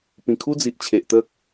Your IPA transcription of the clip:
p ĩ˨˩ kʰ u˦ d͡z i˨ ʔ t͡ɕʰ e˨ ʔ t̪ ə˦ k̚

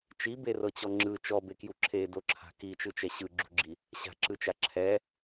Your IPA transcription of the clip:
t͡ʃ i b e r ɤ t͡ɕ ɔ ŋ͡ǁ ɯ t͡ʃ ɔ b e k j u ǁʰ e d o ǁʰ a̤ k i t͡ʃ ɯ t͡ʃ ɛ ɕ ɯ ɡ͡ǁ ṳ ɡ͡ǁ i | ɕ a̤ ǁ ɯ t͡ʃ a ǁʰ ɛ

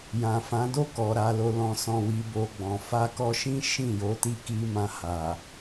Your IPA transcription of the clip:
j ã˨ f ã˨˦ d o˦˨ k ɔ˨ ɾ a˨ l o˨ l ɔ̃˨ s ɔ̃˨ w i˨ b o˨ ɡ͡b ɔ̃˨ f a˧ k ɔ˧ ʃ ĩ˦ ʃ ĩ˦˨ j o˨˦ t i˦˨ k i˧ m ã˧ h a˨

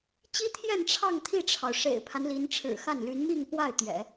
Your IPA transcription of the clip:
t͡ɕ i˥ t̪ʰ j ɛ˥˧ n ʈ͡ʂʰ ɑ˥˧ ŋ t̪ʰ i˥˩ ʈ͡ʂʰ ɑ˩ ʊ̯ ʂ ḛ˨˩ ɪ̯ pʰ a˦ n l i˧˥ n ʈ͡ʂʰ ɻ̩˨˩ x a˥˩ n l y˧˥ n m i˥˧ ŋ p w a˥˩ ɪ̯ t̪ ɥ ɛ̰˨˩˦

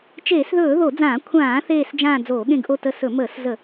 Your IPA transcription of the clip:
t͡ʃ eː˧˩˧ s ð ɵː˧˩˧ ð o˧˩˧ d͡z ãː˧˩˧ kʷʰ ãː˧˩˧ θ eː˦˨ s d͡ʒ ãː˦˨ d͡z oː˧˩˧ ɠ ẽ˦˨ ɡ ʔ o˦˨ t ə˦˨ s ɵ˧˩˧ m əː˧˩˧ s z ə˧˩˧

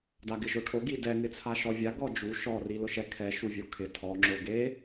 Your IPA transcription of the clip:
d a ɡ ɪ ʒ o ʈʰ o ɡ i d ɛ ŋ ɪ t͡sʰ a ʃ ɔ vʲ a ɡ ɔ d͡ʒ u ʃ ɔ r i l ʊ ʃ ɛ kʰ ɛ ʃ u vʲ o kʰ ɪ tʰ ɔ ŋ͡ǁ o ɡ e

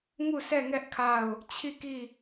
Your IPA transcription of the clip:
ŋ u˦˨ s ɛ˦˨ ŋ ɛ˦ ʔ kʰ a˦˨ ʊ̯ | t͡ɕʰ i˦˨ k i˦˨

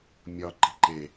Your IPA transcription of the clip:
mʲ ɒ ǃ i̤ ǃ e

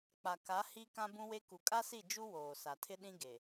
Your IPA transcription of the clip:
k͡p a˨ k a˨˦ h i˦ k ã˦ b ũ˦ w e˦ k u˨ kʼ a˦ s i˦˨ d͡ʒ u˦ w oː˨ s a˨ tʰ ɪ˦ ɗ ĩ˦ ɡ e˨

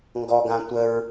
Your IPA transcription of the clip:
ŋ ɡ ɔ ɡ ã tʷ ə ɹ

